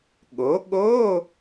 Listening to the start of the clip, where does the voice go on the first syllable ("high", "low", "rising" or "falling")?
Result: rising